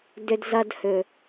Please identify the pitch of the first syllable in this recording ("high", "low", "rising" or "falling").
low